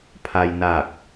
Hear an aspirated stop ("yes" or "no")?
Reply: yes